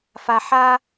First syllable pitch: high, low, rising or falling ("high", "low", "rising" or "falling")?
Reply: low